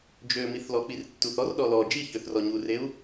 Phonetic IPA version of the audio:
d͡ʒ ø m i θ l ɔ k͡p i r tː u θ ɔ r ɗ ɔ l ɔ d͡ʒ i ç ø θ r ɔ ɲ u r e u̯

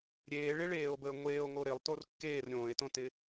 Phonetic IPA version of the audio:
ɾʲ eː ɭ ɪ ɭ eː o̯ b əː ŋʷ eː o̯ ŋ o ɾ ɪ lˠ t o r kː eː r ɾʲ õː e̯ t õ t ɪ

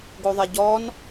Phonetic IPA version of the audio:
ɡ o ðˤ ɛ ɟ ɔ n

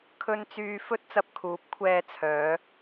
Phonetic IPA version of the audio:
kʰ ɵ˧ n t͡s yː˧ f ɵ˧ t̚ t͡s ɐ˧ p̚ kʰ uː˨˥ p̚ kʷʰ ɛː˧ t͡sʰ œː˨˧

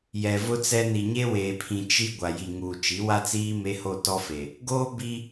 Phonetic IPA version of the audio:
j ɛ˨ v ʊ˦ t͡s ɛ˦ n i˨ ɲ e˦ w eː˨ pʰ ĩ˨ t͡ʃ i˦ ɡʷ a˨ j i˨ ŋ uː˨ t͡ʃ i˨˦ w a˦ t͡s iː˦ m e˦ h o˦˨ t ɔ˦ f e˨ | ɡ oː˦ b i˦

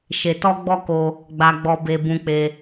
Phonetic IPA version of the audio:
ʃ e˧ t ɔ˦ ɡ͡b ɔ˦ k o˧ | ɡ͡b a˧ ɡ͡b ɔ˧ b e˧ b ũ˧ k͡p e˧

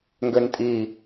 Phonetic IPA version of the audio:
ŋ ɡ ø n tʼ i

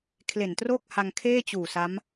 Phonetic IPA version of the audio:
kʰ l e˨˩ n t r o˥˩ k̚ h a˧ ŋ kʰ eː˥˩ t͡ɕ uː˨˩ s a˦˥ m

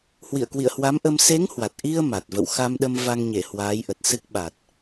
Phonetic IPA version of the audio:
h w ḭ˧˨ ə̯ k w ḭ˧˨ ə̯ h w a˨˦ m ʔ ə˧ m s e˨˦ ŋ h w a˨˩ t̚ ʔ i˧ ə̯ m a˨˩ t̚ v ə̰˧˨ w x a˧ m ɗ ə˧ m v a˧ ŋ ɲ e˧˩ h w aː˨˦ j ʔ ə˨˩ t̚ s ɨ˦˥ k̚ ɓ a˨˩ t̚

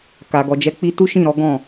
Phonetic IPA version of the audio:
k a˨ ɡ ɔ˨ d͡ʒ ɛ˨˦ k͡p i˧ t u˦ ʃ ĩ˦˨ ɾ ɔ˨˦ ɡ ɔ̃˦˨

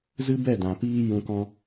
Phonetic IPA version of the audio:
z ɨ˦ b ɛ˦˨ d ã˨ p iː˦ j ũ˧ k ɔ̃˦

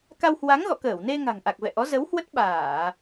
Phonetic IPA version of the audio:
k a˧ w h w a˨˦ ŋ ɣ ɔ̰˧˨ k əː˧˩ w n e˧ ŋ a̤˨˩ ŋ ʔ a˨˩ k̚ v ɛ̰˧˨ ʔ ɔ˨˦ z ə˨˦ w h w ə˦˥ t̚ ɓ aː˧˩˨

